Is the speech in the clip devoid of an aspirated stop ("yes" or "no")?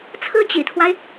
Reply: no